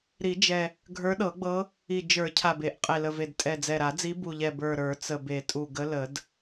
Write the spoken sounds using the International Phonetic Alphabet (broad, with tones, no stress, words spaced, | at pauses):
ɾi˨˩˦d͡ʒɛ˨˩ | ɡʱə˞˧˥ɗɤ˨˩˦ɡ͡bɤ˧˥ | i˨˩ d͡ʒə˞˨˩˦ cʰa˨˩be˨˩˦ʔ qʼe˨˩lə˨˩ve˨˩d tʼɛ˨˩d͡zɛ˨˩ɾa˨˩˦d͡zi˧˥ bu˨˩ʎɛ˨˩ bə˞˨˩ ɾə˞˨˩˦t͡sə˨˩ be˨˩˦tʼu˨˩ ɡə˧˥lə˨˩˦d